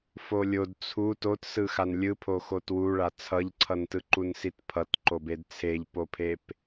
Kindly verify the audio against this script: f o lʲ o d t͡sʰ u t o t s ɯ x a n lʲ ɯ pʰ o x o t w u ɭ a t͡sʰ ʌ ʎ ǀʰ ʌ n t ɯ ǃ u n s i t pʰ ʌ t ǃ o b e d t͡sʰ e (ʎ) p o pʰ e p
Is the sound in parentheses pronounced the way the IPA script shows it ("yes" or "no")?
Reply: yes